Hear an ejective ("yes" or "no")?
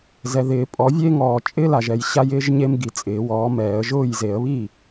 yes